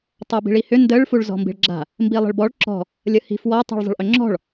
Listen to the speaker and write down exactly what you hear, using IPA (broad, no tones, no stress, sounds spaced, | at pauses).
tˤ a b i̤ ɭ i h ʏ n d ə ɭ f u ɭ z ɔ̤ m b i̤ ɭ ɡ͡ǁ a̤ | m b i lˠ ə̤ ɭ b ɔ ɭ ǁ ɔ̤ | lʲ ə h i̤ f w ɔ tˤ ṳ ɭ zˤ ə̤ ɭ ʔ ʏ ŋ͡ǁ ɔ̤ ɭ